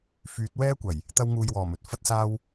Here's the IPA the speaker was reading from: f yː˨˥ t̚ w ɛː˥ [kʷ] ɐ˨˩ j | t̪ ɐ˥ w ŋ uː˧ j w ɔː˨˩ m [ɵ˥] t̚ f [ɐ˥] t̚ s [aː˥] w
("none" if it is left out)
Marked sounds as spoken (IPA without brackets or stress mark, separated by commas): kʷ, ɵ˨, ɐ˥, aː˥